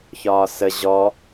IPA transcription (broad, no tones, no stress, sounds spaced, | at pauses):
ç ɒː s ə ʑ ɔ